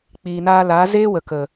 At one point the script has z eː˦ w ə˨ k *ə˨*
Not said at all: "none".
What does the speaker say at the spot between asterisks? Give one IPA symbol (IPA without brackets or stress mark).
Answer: ə˨